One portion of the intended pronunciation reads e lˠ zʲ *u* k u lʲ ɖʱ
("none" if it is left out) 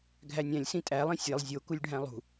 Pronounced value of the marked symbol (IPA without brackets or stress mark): o